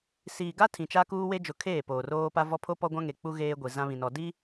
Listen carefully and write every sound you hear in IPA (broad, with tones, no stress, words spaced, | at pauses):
siː˨ɡa˦ tʰĩ˨t͡ʃa˦ kuː˦we˦d͡ʒʊ˨ kʰeː˦˨poː˨roː˦ pa˦vɔ˦ pʰo˦pɔ˦ɡʷã˦ŋe˨ k͡pu˦ɣeː˦ɡʷi˨ zã˦βĩ˨nɔ˨di˦